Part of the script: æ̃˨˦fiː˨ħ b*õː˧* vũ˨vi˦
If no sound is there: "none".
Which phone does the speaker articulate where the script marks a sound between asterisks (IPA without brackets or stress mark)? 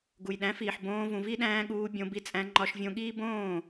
õː˧